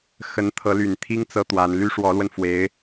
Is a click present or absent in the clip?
absent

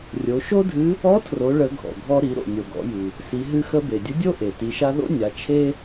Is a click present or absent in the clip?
absent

